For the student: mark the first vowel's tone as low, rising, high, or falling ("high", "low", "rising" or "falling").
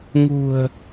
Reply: low